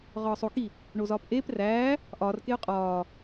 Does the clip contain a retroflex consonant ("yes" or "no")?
yes